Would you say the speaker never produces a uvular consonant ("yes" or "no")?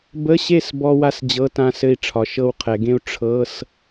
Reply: no